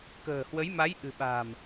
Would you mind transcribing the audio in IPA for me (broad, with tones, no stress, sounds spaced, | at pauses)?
k ə̤ː˨˩ h w ə˨˦ j m a˨˦ j ʔ ɨ̤˨˩ ɓ a̤ː˨˩ m